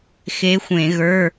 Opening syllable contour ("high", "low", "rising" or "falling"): rising